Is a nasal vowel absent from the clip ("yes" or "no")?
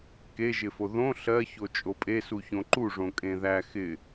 no